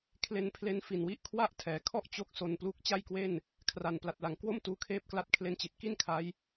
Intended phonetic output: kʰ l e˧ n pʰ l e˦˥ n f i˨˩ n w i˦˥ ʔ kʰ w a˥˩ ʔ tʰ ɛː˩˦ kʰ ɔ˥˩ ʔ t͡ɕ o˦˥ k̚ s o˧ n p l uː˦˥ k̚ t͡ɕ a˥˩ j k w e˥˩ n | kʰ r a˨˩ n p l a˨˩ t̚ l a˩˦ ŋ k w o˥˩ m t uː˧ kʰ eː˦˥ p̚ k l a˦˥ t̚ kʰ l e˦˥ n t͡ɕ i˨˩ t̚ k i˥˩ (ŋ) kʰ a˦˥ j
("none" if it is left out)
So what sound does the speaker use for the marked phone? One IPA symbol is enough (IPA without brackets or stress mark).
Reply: n